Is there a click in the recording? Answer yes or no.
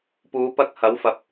no